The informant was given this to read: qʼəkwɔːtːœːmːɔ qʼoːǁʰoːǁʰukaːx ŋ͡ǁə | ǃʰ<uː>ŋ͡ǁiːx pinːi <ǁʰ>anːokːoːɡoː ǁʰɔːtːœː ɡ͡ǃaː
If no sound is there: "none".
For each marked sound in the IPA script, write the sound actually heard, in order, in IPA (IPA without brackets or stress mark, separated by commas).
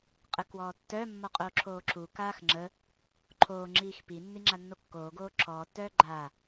oː, ŋ͡ǁ